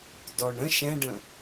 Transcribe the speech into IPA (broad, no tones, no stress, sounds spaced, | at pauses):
d ɔ ɳ ə̃ ʃ ɛ̃ ɖ ə̃